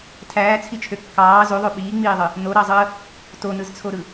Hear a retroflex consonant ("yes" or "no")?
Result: no